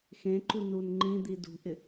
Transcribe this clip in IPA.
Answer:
x ẽ ǃ u n u n ŋ͡ǃ ĩ d̪ i d ṳ ʔ ɪ

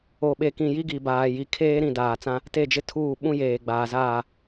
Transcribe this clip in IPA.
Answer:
o˨ ɓ e˨ k ĩ˨ j i˦ ɡ i˨ b aː˨ j i˨ kʰ eː˦ ɾ ĩ˨ d aː˨ t͡s ã˦ | t e˦˨ d͡ʒ ɪ˦ tʰ uː˦˨ ɓ ũ˦ j eː˨ ɡ͡b aː˨ z aː˦˨

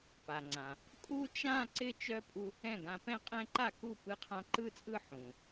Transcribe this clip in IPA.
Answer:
p a˩ ŋ͡ǀ ã˩ | kʼ u˥˧ t͡ʃ ã˥˧ ǀ ɪ˥˧ t͡ʃ œ˧˥ pʼ u˧ | ɛ̃˥˩ ɡ ã˧ p ɛ̃˥˧ qʼ ɛ̃˥˧ ǃ a˥˩ k u˥˩ p ɯ˧˥ qʰ ã˧˥ ǃ ɯ˥˧ t͡sʼ ɯ˥˧ ħ ũ˩

